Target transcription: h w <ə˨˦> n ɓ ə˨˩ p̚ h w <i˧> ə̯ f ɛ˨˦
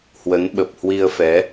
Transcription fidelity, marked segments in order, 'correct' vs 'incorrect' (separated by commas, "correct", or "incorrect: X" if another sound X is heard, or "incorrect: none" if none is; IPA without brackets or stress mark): correct, correct